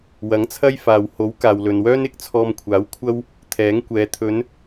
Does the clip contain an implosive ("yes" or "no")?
no